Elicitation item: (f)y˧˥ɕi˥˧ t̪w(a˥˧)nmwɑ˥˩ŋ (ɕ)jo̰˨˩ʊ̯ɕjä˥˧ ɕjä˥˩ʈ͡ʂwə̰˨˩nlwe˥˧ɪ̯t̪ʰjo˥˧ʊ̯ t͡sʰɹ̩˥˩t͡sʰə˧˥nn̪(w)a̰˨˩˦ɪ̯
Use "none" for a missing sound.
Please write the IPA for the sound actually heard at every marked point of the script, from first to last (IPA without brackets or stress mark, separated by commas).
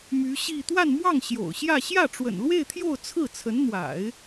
m, a˥˧, ɕ, w